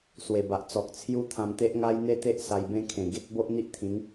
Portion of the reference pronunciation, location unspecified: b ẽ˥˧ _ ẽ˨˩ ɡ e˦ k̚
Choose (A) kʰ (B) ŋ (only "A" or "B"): A